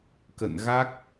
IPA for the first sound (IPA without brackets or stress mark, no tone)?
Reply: k